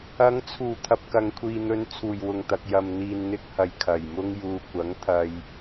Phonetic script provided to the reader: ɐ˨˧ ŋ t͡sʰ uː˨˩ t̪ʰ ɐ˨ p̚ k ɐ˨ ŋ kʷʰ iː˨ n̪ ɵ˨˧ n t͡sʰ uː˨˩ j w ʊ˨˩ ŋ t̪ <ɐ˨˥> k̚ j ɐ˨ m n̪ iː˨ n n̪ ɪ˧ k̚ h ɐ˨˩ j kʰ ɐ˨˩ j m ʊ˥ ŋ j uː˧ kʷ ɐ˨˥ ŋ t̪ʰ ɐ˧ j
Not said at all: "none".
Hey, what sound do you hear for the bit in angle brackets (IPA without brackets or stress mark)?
ɐ˨